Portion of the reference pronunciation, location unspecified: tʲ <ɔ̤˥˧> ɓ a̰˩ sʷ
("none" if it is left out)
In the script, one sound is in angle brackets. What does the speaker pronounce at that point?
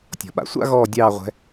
ɔ̤˩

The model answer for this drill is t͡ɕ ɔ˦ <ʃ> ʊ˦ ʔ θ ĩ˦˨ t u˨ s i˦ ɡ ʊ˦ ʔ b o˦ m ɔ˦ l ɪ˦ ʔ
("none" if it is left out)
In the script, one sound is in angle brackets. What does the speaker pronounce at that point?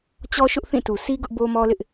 ʃ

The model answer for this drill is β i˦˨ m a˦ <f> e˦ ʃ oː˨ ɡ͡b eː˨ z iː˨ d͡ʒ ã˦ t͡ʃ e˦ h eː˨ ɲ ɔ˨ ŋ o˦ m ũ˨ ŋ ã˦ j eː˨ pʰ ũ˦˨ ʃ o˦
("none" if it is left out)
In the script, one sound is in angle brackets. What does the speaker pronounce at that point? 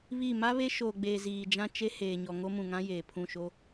β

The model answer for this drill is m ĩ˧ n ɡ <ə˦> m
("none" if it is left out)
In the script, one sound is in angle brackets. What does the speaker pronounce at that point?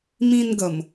ə˨˩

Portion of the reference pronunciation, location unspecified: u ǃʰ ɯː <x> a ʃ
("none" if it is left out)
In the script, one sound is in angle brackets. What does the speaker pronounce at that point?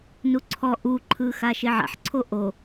x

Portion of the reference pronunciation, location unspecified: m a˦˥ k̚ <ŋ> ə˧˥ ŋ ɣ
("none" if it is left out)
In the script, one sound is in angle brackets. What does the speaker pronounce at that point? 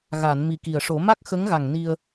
x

